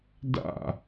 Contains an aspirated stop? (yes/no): no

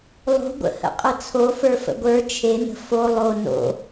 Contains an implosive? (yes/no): no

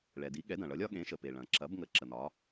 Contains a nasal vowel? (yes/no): yes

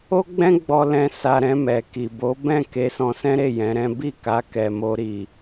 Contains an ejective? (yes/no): no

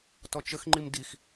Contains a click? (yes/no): yes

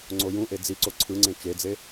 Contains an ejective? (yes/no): no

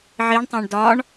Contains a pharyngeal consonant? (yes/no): yes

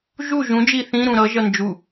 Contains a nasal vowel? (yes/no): yes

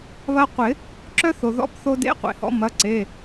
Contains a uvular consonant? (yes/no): yes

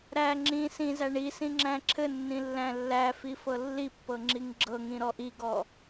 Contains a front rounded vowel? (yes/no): no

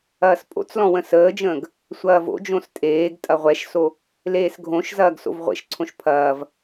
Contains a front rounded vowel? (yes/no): no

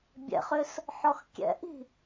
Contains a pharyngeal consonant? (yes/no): yes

